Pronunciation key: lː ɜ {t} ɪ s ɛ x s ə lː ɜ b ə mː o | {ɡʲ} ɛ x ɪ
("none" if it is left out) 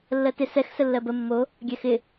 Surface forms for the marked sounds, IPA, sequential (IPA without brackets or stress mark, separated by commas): t, ɡʲ